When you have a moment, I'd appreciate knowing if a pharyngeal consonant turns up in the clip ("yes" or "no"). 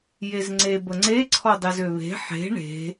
yes